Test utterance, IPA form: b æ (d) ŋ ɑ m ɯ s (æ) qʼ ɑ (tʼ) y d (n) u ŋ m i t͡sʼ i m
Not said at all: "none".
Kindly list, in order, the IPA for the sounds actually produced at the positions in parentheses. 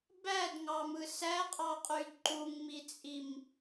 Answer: d, æ, qʼ, ǃ

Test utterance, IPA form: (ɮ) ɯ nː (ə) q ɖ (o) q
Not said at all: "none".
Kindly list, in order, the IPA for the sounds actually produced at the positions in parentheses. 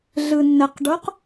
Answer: ɮ, ə, o

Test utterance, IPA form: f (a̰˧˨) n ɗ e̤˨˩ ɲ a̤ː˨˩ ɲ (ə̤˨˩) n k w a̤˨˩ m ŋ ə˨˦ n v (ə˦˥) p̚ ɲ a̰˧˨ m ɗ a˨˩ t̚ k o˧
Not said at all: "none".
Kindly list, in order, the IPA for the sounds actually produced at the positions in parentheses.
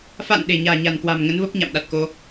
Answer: a̰˧˨, a̤˨˩, ə˦˥

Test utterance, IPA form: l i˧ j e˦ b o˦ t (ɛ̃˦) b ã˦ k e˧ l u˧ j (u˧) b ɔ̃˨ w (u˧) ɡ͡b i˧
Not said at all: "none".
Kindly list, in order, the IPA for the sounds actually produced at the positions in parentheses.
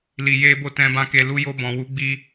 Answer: ɛ̃˦, o˧, u˨˦

